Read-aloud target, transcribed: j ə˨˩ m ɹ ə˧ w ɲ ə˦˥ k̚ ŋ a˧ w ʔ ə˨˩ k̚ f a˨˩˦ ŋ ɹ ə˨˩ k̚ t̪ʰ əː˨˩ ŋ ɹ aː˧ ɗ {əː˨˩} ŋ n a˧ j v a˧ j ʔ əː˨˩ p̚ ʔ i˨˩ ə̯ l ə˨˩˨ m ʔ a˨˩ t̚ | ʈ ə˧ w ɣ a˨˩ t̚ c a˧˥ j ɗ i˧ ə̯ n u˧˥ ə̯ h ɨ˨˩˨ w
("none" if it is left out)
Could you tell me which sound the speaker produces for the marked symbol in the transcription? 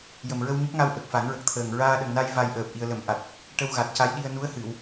ə˨˩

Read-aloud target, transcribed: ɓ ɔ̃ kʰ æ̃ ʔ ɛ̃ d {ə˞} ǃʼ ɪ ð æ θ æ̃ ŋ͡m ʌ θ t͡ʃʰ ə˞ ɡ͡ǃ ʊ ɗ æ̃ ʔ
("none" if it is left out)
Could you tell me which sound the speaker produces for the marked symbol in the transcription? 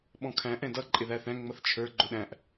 ʌ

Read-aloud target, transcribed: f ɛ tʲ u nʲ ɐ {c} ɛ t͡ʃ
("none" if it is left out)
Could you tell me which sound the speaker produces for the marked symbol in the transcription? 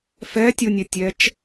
tʲ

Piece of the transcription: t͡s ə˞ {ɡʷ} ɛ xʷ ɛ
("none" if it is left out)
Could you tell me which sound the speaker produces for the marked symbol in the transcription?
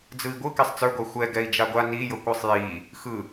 ɡʷ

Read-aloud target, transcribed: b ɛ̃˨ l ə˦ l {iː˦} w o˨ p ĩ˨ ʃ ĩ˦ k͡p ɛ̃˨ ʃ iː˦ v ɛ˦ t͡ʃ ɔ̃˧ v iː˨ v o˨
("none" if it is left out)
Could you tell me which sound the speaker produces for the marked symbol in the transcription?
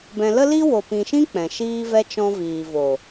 i˦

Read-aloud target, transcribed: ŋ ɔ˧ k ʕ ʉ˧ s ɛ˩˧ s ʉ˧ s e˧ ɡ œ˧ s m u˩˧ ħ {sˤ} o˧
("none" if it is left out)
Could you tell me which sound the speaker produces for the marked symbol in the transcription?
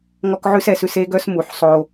sˤ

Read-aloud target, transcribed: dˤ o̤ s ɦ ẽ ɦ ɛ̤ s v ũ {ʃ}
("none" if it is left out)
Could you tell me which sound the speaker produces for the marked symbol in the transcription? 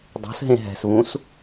s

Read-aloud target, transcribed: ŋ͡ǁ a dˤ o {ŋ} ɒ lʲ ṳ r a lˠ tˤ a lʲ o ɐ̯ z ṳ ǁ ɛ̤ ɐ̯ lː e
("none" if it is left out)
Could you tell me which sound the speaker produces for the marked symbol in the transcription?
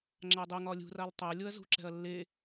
ŋ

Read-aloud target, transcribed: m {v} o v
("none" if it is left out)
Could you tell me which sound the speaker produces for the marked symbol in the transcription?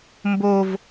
b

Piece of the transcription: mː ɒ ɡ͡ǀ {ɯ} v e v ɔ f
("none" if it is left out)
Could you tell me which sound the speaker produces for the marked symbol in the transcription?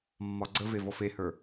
ə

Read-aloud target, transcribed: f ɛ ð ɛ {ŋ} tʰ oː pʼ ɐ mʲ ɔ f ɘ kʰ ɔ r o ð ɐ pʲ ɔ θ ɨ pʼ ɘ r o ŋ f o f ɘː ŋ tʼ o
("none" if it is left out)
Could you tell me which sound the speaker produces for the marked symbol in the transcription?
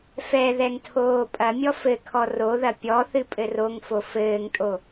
ŋ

